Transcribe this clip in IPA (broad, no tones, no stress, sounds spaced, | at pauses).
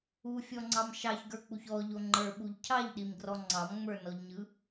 u fʲ ɔ ŋ͡ǀ ɑ m ʃ ɑ ç ɡ ə˞ k͡p u ç ɔ ʎ o ŋ͡ǃ ə˞ ɓ u ʎ cʰ ɑ ʎ ɗ i m ɡ r ɔ ŋ͡ǀ ɑ m ŋ͡m ə˞ n ɔ ʎ ɲ ɯ